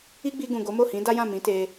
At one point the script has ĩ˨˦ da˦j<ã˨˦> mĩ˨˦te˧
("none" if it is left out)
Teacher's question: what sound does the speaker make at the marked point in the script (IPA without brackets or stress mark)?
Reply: ã˦˨